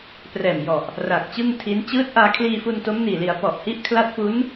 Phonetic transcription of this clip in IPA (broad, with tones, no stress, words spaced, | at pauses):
prɛː˨˩mjɔ˨˩ʔ | ra˨˩k̚t͡ɕɯ˥˩ŋtʰi˦˥n t͡ɕɯː˦˥t̚ʔaː˧kʰliː˧fu˧n to˦˥mniː˨˩li˩˦a̯ pɔ˨˩ʔhi˦˥ʔkʰla˦˥t̚fu˦˥n